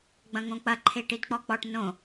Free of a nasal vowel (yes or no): no